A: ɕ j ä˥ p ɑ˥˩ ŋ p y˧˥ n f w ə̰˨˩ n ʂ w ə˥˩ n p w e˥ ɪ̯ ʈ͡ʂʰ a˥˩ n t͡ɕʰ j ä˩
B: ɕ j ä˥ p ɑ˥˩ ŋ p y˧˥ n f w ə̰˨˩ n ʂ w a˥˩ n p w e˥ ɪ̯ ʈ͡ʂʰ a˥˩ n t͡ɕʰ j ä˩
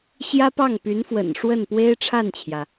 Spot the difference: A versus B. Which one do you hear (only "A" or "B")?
A